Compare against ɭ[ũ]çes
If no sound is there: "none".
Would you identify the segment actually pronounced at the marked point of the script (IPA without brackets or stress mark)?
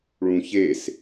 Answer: ũ